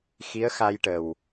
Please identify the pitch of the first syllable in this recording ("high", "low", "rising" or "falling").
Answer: rising